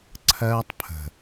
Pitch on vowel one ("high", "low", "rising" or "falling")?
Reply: high